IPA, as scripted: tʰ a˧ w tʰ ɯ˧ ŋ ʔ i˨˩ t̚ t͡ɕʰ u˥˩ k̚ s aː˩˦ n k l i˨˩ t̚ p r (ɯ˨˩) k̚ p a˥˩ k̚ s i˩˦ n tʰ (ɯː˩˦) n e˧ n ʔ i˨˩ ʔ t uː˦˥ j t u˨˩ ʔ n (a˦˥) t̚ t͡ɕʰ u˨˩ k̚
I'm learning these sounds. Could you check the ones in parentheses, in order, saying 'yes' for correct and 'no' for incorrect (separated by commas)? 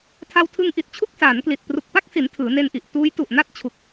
no, yes, no